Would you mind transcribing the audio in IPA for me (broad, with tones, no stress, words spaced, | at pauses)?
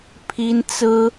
pʰi˥nt͡sɹ̩˥